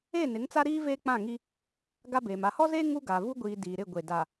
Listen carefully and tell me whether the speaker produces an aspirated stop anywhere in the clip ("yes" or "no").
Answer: no